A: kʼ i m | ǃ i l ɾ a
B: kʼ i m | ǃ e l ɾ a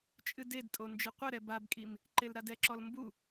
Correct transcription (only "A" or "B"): B